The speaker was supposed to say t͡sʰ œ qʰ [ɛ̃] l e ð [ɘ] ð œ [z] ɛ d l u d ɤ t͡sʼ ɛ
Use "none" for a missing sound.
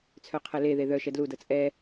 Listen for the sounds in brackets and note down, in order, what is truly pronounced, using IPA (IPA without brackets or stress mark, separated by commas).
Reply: ɛ, e, ʃ